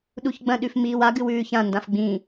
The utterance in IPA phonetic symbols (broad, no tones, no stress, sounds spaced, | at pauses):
ɗ u ç ɡ͡b ɐ̃ ɗ ʉ f m iː w a ɡ ɨ w ʉː ç ã n d ã f ɡ͡b ĩ